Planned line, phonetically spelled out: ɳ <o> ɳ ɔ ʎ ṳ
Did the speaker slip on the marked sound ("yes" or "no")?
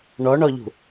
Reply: yes